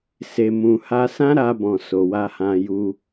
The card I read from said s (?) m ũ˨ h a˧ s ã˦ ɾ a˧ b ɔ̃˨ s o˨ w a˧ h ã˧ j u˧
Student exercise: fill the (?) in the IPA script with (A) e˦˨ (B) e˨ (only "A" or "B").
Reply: B